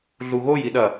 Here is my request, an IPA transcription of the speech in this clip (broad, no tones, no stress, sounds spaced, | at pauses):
ɮ u ɣ o j i ɗ ɐ